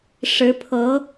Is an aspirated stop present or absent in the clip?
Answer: present